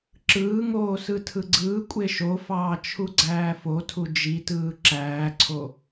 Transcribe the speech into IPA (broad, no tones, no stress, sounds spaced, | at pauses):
ǁ ɯː ŋ oː s ɯ tʰ ɯ ɡ͡ǀ ɯː kʷʼ e ʃ o f ɑː t͡ʃʰ u ɡ͡ǀ æː f o tʰ u d͡ʒ i t ɯː ǁ æː ǀʰ o